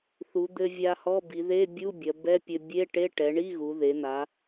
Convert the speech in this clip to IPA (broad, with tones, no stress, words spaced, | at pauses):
θu˩˧ d̪ɘ˧vʲa˧hɔ˧˥˧ bi˩˧ðe˧˥˧bʲu˧˥˧ bʲɐ˩˧ bɛ˧˥˧pʲɘ˧ bʲe˧˥˧ʈe˧˥˧ ʈɛ˩˧ɳi˧˥˧ɣu˩˧ ðe˩˧n̪a˩˧